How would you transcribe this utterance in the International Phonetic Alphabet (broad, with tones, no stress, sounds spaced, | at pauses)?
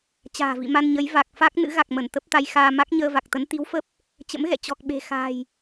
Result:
t͡ɕ a̤ː˨˩ v ḭ˧˨ m a˧ n ɲ ə˨˦ j v a˨˩ k̚ f a˦˥ k̚ n ɨ̰˧˥ ɣ a˨˩ k̚ m ə˧˩ n t̪ ə˦˥ p̚ t̪ a˧ j x aː˧ m a˦˥ k̚ ɲ əː˧ v a˨˩ k̚ t̪ ə˨˦ n t̪ i˨˦ w f ə˦˥ p̚ | t͡ɕ ə̰˧˥ m ɣ ɛ̰˧˨ t͡ɕ ɔ˨˩ k̚ ɓ e̤˨˩ x a̤ː˨˩ j